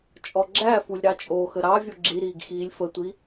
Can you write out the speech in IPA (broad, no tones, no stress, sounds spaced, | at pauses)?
t͡ʃʼ ɔ ɡ͡ǁ æ f u lʲ ɾ ɑ t͡ʃʼ o x ə ɾ ɑ vʲ o ɡ͡ǁ i ɾ iː ɡ x iː lʲ f ə tʷ i